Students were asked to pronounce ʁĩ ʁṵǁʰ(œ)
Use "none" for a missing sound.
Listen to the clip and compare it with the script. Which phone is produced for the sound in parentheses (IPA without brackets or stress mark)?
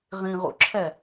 ɛ